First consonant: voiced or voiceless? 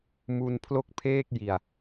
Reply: voiced